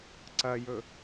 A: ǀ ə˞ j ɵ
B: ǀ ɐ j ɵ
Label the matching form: B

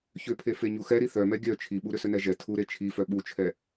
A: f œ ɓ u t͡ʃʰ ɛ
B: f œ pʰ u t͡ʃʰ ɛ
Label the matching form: A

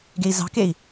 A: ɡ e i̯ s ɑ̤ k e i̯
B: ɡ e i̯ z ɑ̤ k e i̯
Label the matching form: B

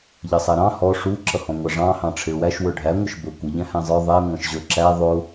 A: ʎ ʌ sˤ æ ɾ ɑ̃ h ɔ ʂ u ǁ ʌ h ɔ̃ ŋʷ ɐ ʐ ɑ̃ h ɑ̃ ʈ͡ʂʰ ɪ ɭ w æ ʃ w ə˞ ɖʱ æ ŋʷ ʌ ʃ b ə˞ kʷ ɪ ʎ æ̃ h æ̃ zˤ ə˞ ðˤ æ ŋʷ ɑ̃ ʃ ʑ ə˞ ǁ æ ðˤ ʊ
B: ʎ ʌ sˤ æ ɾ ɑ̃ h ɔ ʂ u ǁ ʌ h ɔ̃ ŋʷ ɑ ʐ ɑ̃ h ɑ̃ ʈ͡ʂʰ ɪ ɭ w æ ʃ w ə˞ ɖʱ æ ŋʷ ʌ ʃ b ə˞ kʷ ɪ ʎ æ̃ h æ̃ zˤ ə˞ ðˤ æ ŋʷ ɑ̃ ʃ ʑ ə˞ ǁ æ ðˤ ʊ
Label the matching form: B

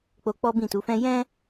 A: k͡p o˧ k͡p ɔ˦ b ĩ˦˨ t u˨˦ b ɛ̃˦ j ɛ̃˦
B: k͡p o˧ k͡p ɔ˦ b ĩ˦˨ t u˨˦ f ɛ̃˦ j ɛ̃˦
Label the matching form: B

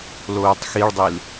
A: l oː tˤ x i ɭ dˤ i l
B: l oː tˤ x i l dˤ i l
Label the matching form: A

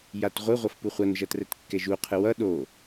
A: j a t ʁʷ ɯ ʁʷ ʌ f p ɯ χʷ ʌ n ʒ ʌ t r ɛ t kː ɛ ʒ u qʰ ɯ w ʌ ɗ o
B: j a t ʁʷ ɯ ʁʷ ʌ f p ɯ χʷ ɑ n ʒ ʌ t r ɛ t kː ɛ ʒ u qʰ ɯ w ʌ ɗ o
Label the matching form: A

